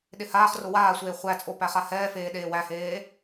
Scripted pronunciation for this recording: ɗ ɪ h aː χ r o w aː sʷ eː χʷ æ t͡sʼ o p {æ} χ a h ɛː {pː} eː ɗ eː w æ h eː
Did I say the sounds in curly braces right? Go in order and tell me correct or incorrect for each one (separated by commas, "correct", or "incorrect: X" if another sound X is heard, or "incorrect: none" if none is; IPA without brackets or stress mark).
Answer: correct, incorrect: f